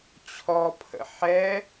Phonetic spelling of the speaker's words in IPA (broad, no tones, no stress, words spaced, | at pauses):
t͡ɕʰɔpʰə̰ ħɛ